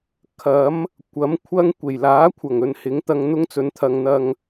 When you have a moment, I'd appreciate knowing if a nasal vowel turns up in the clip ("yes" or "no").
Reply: no